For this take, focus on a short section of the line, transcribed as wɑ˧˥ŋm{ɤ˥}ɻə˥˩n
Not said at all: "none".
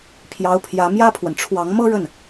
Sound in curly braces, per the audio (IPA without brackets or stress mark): ɤ˥